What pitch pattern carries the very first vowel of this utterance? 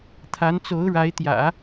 rising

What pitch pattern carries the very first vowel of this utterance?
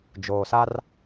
low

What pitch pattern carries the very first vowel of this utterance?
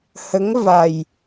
rising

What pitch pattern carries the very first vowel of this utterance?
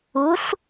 rising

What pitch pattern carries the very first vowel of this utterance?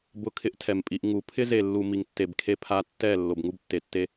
falling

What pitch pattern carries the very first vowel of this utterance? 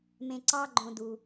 high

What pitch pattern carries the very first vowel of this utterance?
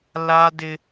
high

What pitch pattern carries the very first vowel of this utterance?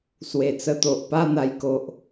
low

